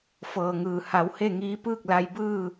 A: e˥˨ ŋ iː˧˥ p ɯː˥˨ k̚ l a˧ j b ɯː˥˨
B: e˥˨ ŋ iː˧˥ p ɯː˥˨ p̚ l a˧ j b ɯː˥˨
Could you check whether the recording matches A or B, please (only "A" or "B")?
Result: A